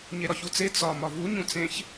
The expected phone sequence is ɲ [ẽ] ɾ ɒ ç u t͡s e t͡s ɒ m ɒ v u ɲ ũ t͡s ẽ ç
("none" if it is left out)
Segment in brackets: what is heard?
e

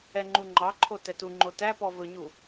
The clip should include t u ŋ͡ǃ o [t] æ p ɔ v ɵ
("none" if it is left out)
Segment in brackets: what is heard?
t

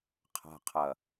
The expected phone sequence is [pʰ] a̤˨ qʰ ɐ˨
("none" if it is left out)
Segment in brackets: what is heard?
qʰ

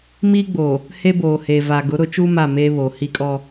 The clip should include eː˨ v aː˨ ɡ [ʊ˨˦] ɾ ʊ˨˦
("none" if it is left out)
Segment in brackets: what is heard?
ʊ˨˦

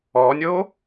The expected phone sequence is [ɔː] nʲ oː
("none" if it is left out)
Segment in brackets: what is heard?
ɔː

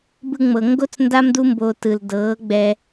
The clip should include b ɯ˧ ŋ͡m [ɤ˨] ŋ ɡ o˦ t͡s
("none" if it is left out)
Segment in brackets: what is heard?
ɤ˨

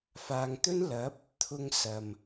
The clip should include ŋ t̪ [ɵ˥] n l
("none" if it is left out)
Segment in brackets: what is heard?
ɵ˥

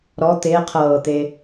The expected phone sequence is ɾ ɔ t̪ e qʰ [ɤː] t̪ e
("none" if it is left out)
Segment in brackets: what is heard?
ɤː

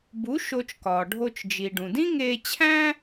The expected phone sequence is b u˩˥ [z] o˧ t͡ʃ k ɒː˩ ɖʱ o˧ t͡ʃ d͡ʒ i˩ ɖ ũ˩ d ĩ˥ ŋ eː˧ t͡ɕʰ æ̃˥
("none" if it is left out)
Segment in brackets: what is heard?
ʃ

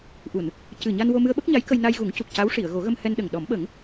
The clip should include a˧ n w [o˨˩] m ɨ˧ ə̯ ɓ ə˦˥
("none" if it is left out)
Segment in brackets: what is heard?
o˧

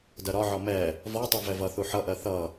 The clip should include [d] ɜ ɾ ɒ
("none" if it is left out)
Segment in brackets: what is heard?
d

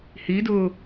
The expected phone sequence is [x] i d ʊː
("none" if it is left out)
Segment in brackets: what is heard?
h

